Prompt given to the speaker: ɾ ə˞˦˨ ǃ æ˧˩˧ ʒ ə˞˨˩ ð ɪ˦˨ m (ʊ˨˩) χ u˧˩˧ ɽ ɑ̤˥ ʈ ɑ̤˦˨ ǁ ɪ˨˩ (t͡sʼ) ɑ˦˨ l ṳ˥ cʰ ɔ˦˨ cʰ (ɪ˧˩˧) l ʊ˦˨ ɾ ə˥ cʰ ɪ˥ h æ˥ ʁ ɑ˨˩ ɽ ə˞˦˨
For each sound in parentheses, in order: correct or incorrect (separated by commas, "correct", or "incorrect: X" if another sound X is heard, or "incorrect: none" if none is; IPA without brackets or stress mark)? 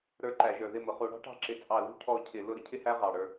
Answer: correct, correct, correct